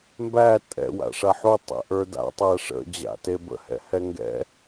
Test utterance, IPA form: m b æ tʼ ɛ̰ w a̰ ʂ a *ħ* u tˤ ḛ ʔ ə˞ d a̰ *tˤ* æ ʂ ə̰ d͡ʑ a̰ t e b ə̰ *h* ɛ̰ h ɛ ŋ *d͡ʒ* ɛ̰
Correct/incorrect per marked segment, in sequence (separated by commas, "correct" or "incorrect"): correct, correct, correct, incorrect